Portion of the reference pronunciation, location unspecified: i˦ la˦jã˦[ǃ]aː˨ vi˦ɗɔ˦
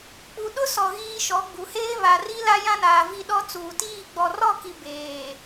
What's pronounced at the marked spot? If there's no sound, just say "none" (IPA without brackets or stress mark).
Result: n